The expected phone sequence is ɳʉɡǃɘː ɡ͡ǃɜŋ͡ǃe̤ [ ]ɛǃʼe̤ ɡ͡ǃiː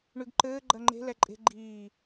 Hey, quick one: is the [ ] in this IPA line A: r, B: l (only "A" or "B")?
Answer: B